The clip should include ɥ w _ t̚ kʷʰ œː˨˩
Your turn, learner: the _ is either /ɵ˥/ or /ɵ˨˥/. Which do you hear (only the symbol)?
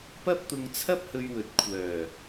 ɵ˨˥